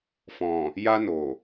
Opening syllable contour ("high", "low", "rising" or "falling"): low